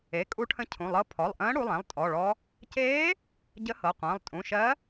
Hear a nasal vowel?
yes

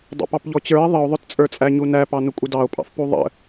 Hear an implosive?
no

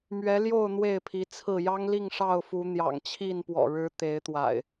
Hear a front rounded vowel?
no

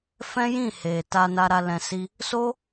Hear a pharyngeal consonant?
no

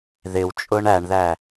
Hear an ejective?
yes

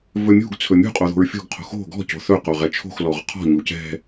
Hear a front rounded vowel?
no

